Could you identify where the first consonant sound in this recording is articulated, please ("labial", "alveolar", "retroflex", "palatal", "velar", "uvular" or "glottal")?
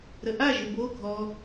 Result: alveolar